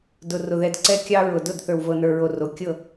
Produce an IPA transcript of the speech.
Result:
dʊ˨ rʊ˨ðɛ˨d ǀɛ˦kʲɑ˦ ɹʊ˨dʊ˦˨d θə˞˨wvɤ˨nə˞˨ɹo˨ ro˨ kʲɤ˦˨

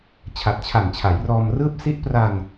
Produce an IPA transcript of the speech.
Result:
t͡ɕʰa˨˩t̚t͡ɕʰa˨˩nt͡ɕʰa˩˦j rɔː˧mrɯː˥˩p̚ si˦˥ʔpra˧n

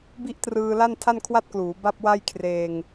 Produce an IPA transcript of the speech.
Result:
bi˥˩ʔtrɯː˧ la˥˩ntʰa˥˩nkʰwa˥˩t̚kluː˩˦ ba˥˩p̚wa˥˩jkʰreː˧ŋ

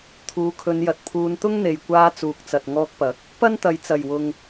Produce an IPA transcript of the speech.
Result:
t̪ʰuː˨˥kʰɵ˨˧njɐ˨t̚pʰuː˧n t̪ʊ˥ŋn̪e˨jkʷaː˧ t͡suː˨k̚t͡sɐ˨t̚ŋɔː˧k̚pɐ˨˥k̚ | pɐ˥nt̪ɐ˨jt͡sɐ˨˩jwʊ˨ŋ

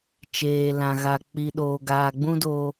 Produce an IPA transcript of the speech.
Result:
t͡ʃeː˨ lã˨ɣa˨ k͡pi˨ɗoː˨ ɡaː˨ɡ͡bũ˦ doː˦

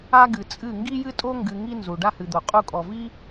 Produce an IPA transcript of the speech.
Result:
a˦ɡɨ˨t͡sʼɨ˦˨ ŋɡi˦jɨ˦tʼo˦ ŋɡɨ˧ŋi˦ nzu˨ ɖa˦hɨ˨d̪o˨ qʼu˧kʼɔ˨vi˦

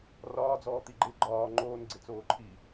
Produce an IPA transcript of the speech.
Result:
rɒːd͡zɔːt̪i ɡ͡ǃɪ ɡ͡ǃɒː ŋ͡ǃoːnɡ͡ǀɪ t͡soːǃʰi

